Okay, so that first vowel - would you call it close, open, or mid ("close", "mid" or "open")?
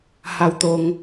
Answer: open